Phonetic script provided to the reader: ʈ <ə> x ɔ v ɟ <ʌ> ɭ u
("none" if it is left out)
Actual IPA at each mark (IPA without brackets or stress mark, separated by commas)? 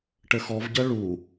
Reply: ə, ʌ